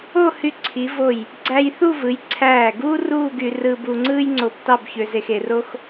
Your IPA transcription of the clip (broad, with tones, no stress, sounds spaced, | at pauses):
o˥˧ h y˧ ǀʰ i˩˧ v o˧˩ j | ɡ͡ǀ æ˧ j θ u˥˧ v ɯ˩˧ j ǀʰ æː˧˩ ɡ uː˥ r uː˥˧ ɡ y˧ r ɯː˧ b u˧ ŋ͡ǀ ɯː˥ j ŋ͡ǀ o˧ b t ɑ˥˧ b ç ø˧ z e˧ x e˩˧ r o˥ x